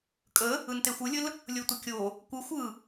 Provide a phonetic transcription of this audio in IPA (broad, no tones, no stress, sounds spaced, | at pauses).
kʼ ə | ɯ n t e xʷ ɯ lʲ ə l | lʲ o tʷ ə kʲ o | kʷ ɯ xʷ ɯ